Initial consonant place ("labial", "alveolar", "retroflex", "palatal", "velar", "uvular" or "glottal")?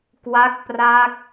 velar